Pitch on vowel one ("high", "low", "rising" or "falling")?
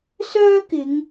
high